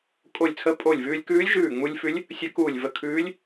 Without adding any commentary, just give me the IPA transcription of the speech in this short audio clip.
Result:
kʼ o˧˩ lʲ t͡sʰ ə˧˥ pʼ o˧˩ lʲ v ʉː˧ lʲ k ʉː˧˥ lʲ ʒ ʉː˧˩ ŋ͡m u˧ lʲ f ʉ˧˥ lʲ | sʲ ə˧˥ k uː˧˩ lʲ v ə˧˩ kʰ ʉː˧˥ lʲ

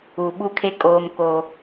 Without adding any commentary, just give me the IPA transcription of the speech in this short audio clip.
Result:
u˨ ɓ u˦ kʰ e˦ kʼ oː˦ m k o˦

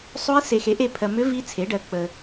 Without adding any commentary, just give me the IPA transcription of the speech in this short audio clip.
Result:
sˤ o˧˥ i̯ s e˨ x e˩˥ ʔ e˦˨ pʰ ɜ˨ m ʏ˧˥ v i˧˥ t͡sʰ e˩˥ ɖ ɜ˨ k͡p ə˨

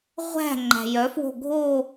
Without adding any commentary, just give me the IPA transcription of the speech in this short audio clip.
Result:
ʁʷ æ̤ ŋ͡ǃ æ̤ j œ f w o̤ ɡʱ o

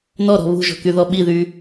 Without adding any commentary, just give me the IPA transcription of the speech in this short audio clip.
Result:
n ɔ ɾ ɔ̤ β ṳ ʒ ɔ̤ k y ð ɔ ɓ i ð y

